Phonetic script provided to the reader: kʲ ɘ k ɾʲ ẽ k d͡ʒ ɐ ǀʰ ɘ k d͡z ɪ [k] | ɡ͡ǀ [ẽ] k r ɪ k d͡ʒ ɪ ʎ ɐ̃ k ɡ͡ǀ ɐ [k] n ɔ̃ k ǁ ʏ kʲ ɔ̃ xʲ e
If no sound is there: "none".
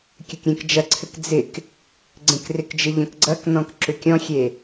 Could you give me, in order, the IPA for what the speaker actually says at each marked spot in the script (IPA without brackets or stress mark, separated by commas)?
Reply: k, ẽ, k